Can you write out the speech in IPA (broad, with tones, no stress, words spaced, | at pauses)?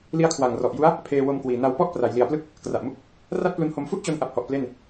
li˦˥a̯kʰwa˨˩ŋrɔ˨˩ʔju˦˥a̯ | pʰeː˧wo˧mkwiː˨˩ na˧wpɔ˥˩ʔ pra˩˦jli˨˩a̯plɯ˥˩k̚ | kra˨˩ʔmu˦˥k̚ | ra˥˩t̚plu˧nho˧m fu˥˩ʔt͡ɕo˧nʔa˨˩p̚hɔ˨˩ʔ ple˥˩n